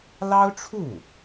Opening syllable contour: high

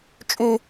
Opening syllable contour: high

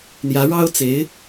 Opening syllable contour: rising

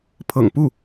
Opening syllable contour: low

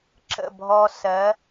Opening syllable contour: falling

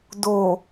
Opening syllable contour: low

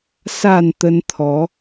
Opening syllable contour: low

